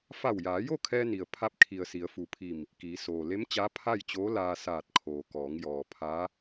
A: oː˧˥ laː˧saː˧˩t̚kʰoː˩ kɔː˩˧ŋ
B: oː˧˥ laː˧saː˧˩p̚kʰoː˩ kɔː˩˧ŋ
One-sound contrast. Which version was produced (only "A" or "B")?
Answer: A